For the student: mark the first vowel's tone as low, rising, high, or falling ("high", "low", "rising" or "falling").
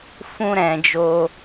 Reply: high